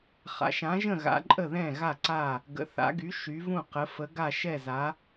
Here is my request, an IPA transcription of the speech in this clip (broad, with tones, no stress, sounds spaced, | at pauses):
χ a̰˩˧ ʃ ã˩˧ ʒ ə̃˧˩ ɣ a̰˩˧ ǃʼ ə˧˩ ð ɛ̃˧˩ ɣ a˧˩ ǀ a˧˩ | ɡ ə̰˩˧ θ a̰˩˧ ɡ y˩˧ ʃ y˩˧ v ũ˧˩ q ə˩˧ f ə˩˧ ɡ a˧˩ ʃ ɛ˧˩ z a˩˧